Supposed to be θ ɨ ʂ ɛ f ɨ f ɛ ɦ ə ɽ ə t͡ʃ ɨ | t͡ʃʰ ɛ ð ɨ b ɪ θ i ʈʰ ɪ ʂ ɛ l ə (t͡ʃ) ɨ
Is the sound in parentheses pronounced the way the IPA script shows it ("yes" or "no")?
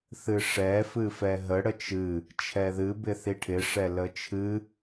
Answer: no